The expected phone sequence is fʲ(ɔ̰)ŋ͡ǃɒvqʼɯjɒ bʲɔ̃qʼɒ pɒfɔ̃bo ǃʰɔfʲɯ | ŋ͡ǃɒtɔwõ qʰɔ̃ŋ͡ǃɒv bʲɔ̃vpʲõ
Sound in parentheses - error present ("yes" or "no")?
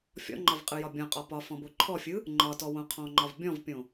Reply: no